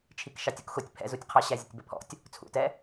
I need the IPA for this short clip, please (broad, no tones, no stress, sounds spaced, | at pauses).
t͡ʃʰ i k ʃ ɑ tʲ u k x ʊ tʲ pʰ ɛ̰ z u tʲ qʰ ɑ ɕ æ zʲ ə tʲ b ə pʰ ɔ̰ tʲ | t͡sʰ ṵ t ɛ